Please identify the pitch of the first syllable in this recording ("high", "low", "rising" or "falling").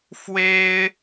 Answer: high